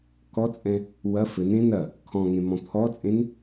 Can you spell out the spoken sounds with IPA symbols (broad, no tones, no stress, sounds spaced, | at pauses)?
k ɔ t͡sʼ ɛ̃ | w ɐ f ɘ n ẽ n ɐ | kʰ ɔ̃ ŋ ẽ m ɔ̃ t̪ʰ ɔ t͡sʼ ẽ n